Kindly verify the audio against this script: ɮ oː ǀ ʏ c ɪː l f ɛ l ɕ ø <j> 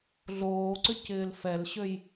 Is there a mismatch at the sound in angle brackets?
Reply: no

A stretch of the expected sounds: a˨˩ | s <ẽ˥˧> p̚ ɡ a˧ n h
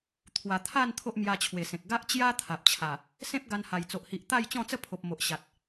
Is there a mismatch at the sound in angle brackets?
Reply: yes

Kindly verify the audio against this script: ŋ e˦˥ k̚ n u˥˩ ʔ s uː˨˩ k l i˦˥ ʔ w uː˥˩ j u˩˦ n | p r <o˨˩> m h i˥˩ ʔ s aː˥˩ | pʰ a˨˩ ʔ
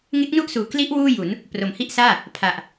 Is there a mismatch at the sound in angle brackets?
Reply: no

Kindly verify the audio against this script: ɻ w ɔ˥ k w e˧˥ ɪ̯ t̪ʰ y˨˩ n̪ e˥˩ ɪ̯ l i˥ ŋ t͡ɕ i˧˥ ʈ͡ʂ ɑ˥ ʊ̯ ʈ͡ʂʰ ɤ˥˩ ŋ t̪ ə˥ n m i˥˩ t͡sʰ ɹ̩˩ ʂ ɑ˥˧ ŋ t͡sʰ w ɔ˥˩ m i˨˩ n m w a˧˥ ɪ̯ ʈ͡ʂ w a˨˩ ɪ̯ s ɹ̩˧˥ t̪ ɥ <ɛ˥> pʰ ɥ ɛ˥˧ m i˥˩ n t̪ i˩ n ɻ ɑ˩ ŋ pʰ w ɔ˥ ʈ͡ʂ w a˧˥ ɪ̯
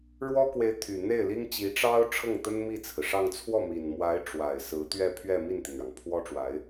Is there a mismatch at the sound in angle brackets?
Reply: yes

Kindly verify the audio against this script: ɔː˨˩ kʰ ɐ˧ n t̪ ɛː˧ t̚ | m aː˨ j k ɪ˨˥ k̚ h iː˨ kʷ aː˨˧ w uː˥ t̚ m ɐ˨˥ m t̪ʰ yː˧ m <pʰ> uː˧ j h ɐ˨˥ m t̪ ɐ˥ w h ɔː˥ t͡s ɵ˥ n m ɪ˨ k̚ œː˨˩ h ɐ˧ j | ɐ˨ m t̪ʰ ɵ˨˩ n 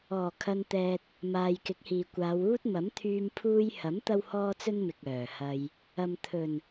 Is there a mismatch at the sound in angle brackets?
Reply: no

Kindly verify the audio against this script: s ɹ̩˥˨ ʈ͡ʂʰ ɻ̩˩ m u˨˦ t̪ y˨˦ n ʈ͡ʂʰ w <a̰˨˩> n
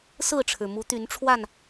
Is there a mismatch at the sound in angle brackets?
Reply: yes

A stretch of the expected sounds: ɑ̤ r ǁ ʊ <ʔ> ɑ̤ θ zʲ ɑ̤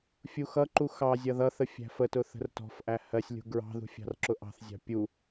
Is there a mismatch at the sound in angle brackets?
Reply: no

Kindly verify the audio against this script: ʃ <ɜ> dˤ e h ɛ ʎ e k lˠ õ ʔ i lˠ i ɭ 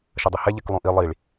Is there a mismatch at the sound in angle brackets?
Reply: no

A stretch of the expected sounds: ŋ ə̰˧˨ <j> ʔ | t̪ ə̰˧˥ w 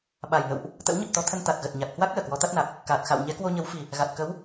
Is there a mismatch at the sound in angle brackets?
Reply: yes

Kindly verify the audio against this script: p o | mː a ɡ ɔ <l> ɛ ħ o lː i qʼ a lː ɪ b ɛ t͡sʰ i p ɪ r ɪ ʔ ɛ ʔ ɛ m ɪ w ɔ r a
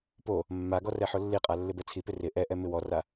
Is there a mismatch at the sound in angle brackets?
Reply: yes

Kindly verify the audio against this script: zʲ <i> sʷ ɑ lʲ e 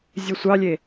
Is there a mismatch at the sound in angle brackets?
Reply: yes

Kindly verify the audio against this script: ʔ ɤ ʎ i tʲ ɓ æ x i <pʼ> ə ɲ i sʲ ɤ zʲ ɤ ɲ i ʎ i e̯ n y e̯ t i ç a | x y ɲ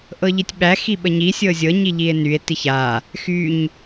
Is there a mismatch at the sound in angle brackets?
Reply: yes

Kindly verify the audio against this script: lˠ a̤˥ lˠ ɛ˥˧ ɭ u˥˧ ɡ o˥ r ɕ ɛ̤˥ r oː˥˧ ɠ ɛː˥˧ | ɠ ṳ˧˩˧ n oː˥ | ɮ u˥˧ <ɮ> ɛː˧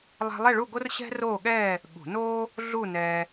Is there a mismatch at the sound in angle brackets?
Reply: yes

